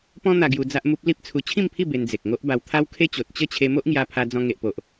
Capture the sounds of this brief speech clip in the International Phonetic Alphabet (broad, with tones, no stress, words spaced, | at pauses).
pɔ̃˦n̪a˧ ɡju˧d͡za˦ʔmu˦p̚ li˦p̚t͡sʰu˧ t͡ɕʰĩ˥˧mpʰi˥˧ be˧nd͡ze˨k̚ ŋo˦ʔba˧w t̪ʰa˦wkʰe˦t͡ɕo˨t̚ t͡ɕə˥˧t͡ɕʰe˧ mo˦ʔŋja˧pʰa˧ d͡zɔ̃˧ ŋe˨ʔpo˨ʔ